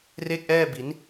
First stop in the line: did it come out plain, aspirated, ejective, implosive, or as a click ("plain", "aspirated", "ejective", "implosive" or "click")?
plain